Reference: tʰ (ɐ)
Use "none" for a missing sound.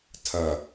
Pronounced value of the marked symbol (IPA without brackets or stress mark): ɐ